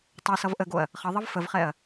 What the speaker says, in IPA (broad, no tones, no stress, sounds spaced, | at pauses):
tˤ ɛ s ʌ v ʔ ə ɡ o ɐ̯ | χ ʌ ðˤ ʌ v f ə v χ ɛ ɐ̯